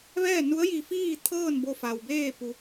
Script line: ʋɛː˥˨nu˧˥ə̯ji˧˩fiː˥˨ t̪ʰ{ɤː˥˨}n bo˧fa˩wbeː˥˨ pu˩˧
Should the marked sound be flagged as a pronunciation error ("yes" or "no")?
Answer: no